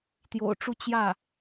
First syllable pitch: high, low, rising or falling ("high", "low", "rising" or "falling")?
low